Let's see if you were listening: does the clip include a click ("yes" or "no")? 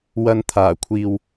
no